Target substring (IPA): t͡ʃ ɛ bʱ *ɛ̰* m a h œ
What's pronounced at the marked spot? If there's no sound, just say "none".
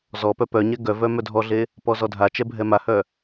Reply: ɛ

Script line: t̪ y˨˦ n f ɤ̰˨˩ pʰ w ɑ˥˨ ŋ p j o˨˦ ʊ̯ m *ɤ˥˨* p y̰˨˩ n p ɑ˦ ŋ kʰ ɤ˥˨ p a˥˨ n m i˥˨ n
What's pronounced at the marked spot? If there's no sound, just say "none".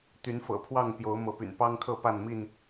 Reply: ɤ˨˦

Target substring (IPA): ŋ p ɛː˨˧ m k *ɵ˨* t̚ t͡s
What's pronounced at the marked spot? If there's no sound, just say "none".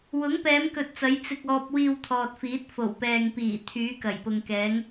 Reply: ɵ˨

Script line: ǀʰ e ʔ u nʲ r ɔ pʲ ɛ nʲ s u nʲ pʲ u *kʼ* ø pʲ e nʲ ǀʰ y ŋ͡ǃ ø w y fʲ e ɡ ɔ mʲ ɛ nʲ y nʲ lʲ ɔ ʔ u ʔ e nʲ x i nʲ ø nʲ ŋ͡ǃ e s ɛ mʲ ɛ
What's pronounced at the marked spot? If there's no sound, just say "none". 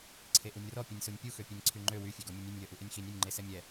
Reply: x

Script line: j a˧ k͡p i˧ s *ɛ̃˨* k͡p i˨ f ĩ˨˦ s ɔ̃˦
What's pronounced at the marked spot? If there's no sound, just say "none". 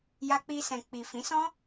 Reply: ɛ̃˨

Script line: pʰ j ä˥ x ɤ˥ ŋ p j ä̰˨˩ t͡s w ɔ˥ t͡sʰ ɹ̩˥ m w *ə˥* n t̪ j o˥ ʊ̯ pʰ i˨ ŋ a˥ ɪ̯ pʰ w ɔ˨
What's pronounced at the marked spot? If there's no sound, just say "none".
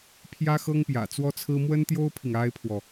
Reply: ə˥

